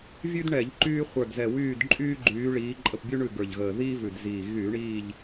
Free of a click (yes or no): no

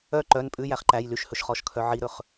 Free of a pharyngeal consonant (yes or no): no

